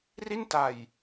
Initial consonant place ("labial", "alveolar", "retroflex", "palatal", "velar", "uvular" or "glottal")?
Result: alveolar